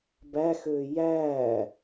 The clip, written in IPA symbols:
bæ xøːjæː

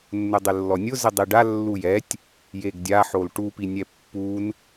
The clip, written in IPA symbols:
nːʊdˤɪlːɔnʲʊ zɪdˤiɖa lːujɛtʲ | jeɡdʲa ħolʈu pinʲɛpːun

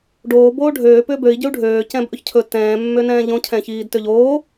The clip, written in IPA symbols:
ɖoː boːɖʱøː pʏːbøi̯ ɟʏu̯ɖʱøː cɛ̃bʔɵçcʰɵ tɛ̃ː mːønɛ̃ːʎõ cʰɛ̃çiːdtøʎoː

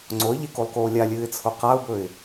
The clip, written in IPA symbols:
ŋ͡ǀoə̯ʎekolˠkoː lʲalʲɨːɪ̯t͡sʰo qaʊ̯bɵɪ̯

